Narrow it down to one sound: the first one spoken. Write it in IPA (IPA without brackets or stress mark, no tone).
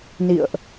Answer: n